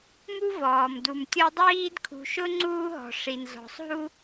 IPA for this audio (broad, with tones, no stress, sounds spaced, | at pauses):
m u˦ v ɔː˩ m d u˩ m tʲ ɔ˦ dˤ iː˦ d kʰ ṳ˨ ʃ ʊ˥ ŋ͡ǀ uː˦ ɦ ɔ̤˩ ʂ i˩ n z ɔ̤˩ sˤ ɦ u˦